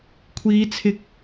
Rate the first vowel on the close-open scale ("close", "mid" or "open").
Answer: close